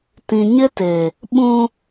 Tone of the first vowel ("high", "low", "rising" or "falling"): low